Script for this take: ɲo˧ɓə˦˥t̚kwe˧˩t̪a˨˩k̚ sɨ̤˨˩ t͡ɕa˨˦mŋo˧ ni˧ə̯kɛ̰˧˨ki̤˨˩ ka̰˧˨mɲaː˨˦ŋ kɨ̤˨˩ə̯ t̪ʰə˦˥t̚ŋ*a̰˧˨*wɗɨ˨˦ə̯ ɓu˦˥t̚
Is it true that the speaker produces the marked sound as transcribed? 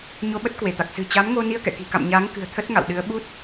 yes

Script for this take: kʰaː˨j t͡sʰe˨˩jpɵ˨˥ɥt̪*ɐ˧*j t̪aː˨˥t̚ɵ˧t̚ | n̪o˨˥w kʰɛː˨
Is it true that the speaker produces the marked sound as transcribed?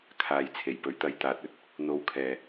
yes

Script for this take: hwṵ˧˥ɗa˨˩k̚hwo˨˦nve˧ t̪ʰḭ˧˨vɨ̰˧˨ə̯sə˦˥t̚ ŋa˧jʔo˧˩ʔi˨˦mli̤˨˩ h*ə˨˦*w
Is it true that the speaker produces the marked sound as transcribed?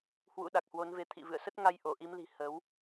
yes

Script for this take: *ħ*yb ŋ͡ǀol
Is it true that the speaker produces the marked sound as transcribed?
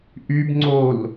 no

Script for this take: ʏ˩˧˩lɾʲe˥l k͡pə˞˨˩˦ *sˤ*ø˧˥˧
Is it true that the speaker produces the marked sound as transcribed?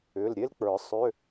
yes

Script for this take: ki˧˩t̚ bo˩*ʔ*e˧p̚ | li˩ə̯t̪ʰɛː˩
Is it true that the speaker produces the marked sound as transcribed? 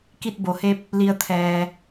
no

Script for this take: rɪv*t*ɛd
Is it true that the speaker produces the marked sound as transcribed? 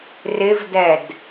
no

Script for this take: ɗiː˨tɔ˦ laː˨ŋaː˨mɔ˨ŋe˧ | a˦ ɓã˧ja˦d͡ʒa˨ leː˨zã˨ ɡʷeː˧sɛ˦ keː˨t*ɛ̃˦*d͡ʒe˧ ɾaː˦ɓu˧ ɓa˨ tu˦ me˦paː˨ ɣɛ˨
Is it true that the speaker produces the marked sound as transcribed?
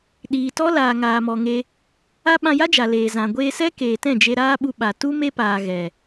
no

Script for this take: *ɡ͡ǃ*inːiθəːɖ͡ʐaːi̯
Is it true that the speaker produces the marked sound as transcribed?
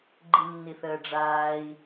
yes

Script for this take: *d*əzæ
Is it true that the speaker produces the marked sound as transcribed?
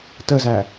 no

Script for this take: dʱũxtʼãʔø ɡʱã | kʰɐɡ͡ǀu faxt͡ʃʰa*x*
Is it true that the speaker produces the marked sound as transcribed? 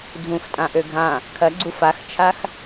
yes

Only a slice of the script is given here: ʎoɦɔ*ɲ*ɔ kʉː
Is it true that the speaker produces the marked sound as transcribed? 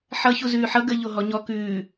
yes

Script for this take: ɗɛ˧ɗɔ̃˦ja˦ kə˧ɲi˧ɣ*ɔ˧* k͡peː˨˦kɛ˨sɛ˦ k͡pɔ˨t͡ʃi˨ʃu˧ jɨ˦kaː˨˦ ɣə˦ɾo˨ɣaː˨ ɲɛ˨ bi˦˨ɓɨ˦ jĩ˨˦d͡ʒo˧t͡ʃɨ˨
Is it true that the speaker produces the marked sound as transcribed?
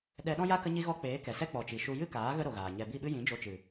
yes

